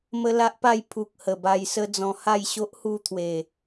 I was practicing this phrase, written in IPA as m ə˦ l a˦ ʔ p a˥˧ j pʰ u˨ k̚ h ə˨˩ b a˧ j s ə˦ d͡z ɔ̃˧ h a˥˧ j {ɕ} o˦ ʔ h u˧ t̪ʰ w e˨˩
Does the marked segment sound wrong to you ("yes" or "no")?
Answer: no